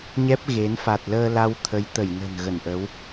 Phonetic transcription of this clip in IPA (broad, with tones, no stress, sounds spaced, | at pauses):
ɲ ɛ˦˥ p̚ ɣ e˨˦ n f a˨˩ t̚ l əː˧ l a˧ w t̪ʰ ə˨˦ j t̪ ə˧˩ j n ə̤˨˩ n ɣ ə˧˩ n ʔ ə˨˦ w